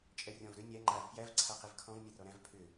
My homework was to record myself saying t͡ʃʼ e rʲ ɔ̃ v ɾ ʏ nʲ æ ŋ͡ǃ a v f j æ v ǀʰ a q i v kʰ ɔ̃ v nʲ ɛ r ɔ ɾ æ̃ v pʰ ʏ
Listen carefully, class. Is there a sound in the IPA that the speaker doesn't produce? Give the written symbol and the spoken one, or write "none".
e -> ɛ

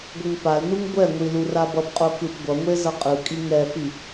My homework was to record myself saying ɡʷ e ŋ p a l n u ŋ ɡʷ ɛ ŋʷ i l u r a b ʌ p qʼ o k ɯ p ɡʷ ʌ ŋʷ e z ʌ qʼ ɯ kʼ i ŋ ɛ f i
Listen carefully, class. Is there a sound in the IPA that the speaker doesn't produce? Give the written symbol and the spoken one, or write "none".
none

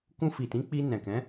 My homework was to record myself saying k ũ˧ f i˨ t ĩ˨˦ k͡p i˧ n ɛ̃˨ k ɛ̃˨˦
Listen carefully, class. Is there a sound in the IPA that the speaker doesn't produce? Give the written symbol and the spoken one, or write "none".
none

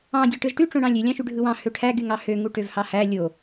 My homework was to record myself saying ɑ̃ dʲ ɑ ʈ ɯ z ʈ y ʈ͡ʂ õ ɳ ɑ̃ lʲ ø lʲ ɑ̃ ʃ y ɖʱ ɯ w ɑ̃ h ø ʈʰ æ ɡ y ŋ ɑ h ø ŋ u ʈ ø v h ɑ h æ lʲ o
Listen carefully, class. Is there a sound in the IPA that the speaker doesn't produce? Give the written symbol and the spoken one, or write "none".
none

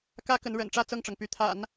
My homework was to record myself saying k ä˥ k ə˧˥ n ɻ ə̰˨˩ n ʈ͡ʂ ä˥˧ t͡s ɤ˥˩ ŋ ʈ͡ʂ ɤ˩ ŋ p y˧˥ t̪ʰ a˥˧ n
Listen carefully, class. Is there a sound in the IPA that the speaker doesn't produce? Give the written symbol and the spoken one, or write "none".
a˥˧ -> a̰˨˩˦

